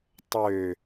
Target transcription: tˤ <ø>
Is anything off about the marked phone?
no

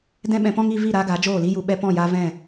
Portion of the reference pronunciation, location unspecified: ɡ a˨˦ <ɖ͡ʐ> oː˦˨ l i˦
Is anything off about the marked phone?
yes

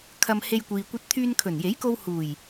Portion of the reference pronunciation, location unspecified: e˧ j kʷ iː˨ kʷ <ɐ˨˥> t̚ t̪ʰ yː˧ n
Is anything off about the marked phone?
yes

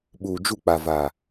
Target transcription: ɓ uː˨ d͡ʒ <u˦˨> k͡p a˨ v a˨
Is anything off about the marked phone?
no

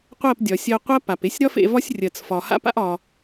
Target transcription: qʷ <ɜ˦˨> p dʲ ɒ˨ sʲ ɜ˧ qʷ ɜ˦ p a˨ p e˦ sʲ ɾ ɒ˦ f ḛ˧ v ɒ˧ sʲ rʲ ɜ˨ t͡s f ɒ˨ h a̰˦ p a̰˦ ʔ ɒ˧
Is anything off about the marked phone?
no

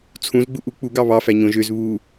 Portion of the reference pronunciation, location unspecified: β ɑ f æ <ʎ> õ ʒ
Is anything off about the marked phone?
yes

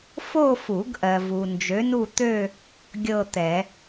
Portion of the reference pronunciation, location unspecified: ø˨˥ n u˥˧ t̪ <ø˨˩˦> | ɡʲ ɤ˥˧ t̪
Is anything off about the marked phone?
yes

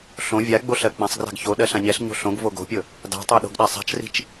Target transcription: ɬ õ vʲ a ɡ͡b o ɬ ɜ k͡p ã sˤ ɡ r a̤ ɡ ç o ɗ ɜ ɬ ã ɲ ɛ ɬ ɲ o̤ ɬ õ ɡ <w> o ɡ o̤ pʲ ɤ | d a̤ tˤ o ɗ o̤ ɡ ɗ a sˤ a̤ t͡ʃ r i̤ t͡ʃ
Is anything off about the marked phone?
yes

